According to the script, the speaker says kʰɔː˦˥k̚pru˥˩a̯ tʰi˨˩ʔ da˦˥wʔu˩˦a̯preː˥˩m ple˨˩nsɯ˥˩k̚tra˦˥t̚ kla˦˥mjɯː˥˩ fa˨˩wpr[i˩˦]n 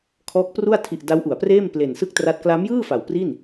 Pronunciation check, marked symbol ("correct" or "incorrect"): incorrect